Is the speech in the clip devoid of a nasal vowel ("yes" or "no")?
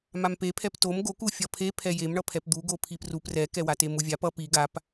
yes